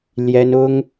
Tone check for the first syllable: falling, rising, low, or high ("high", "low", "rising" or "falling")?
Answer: high